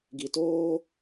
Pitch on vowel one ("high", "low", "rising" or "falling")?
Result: low